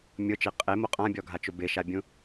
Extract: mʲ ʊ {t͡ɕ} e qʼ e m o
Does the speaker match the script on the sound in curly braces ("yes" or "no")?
no